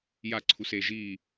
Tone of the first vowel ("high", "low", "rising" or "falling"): falling